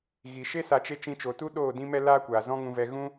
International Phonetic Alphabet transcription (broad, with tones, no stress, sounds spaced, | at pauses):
ɣ i˨ ʃ e˦ s a˧ t͡ʃ e˦ t͡ʃ ĩ˧ t͡ʃ o˨ t u˦ ɗ oː˦˨ d ĩ˦ m ɛ˦ l aː˦ kʷ aː˨ z ɔ̃˦ ŋ ũ˧ v ɛ˧ ɣ ũ˦